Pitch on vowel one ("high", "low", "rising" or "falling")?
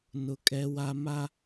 high